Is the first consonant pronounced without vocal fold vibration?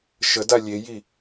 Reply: yes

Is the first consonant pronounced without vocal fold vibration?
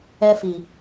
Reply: yes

